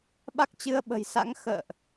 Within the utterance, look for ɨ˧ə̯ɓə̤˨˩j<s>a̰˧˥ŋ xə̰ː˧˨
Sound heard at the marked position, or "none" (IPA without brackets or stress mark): s